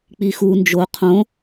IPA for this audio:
k͡pixu nd͡ʒo qʰõ

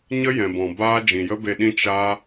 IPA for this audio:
ɲə˦jɛ̃˨bɔ̃˨ baː˦ d͡ʒĩ˨jə˦be˧ɗĩ˦ t͡ʃa˦

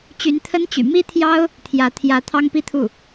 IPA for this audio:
t͡ɕy˧˥nt̪ʰə˥nt͡ɕy̰˨˩ mi˥t̪ʰjɑ˥ʊ̯ | t̪ʰjä˧˥ t̪ʰjä˧˥t̪ʰɑ˥ŋpi˥t̪ʰu˥˩

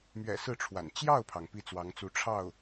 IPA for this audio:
mɥɛ̰˨˩ sɹ̩˥˩ʈ͡ʂʰwa̰˨˩n t͡ɕjɑ˥˩ʊ̯pʰɑ˩ŋ pi˥˩t͡swɑ˧˥ŋt͡su˧˥ ʈ͡ʂʰɑ˥˩ʊ̯

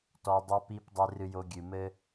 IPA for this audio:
tɔ˨dˤɐ˧pi˧p dˤe˧rɨ˧jo˧ɡʲɨ˨ mɘ˦

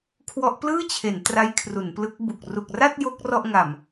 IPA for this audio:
kʰwɔ˦˥ʔplɯː˥˩t͡ɕʰe˩˦n tra˦˥jkʰru˩˦nplɯ˦˥k̚bu˨˩k̚ ru˨˩k̚ra˥˩t̚ jo˦˥k̚ rɔ˥˩ʔŋa˨˩m

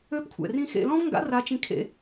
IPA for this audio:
ø˧˥pkʷʰɛ̰˩rĩ˧ xḛ˧lɔ̃˥vŋɡa̰˧˥ ra˧˥t͡ʃĩ˧˥kʰḛ˧

